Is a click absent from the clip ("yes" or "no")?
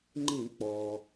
no